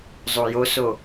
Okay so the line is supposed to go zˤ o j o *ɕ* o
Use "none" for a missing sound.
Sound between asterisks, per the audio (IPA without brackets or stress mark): s